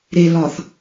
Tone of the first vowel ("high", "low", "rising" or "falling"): low